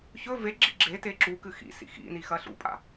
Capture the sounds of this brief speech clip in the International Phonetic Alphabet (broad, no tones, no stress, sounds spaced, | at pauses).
ç ɵ v e ɡ͡ǁ i ɡ͡ǁ e t e ǁ u k ɨ x ḭ s ḭ x ḭ n i x ɐ ɬ ṵ pʼ a̰